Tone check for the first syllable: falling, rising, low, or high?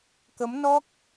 rising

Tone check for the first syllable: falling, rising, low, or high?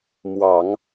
low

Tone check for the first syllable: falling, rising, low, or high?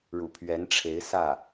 low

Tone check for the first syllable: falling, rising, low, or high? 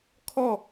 falling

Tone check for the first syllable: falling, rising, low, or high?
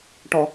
low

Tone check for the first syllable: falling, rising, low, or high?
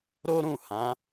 high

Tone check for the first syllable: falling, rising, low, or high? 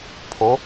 rising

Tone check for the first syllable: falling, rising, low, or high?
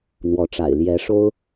rising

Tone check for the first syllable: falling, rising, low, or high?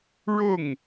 falling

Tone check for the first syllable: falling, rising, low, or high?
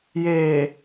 low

